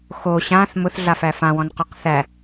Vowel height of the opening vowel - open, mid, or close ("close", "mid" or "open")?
mid